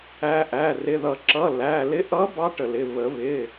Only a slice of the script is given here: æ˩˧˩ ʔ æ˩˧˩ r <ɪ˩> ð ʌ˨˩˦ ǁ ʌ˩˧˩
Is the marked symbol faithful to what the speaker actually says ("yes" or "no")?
no